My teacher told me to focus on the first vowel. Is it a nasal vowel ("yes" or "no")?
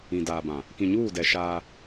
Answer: yes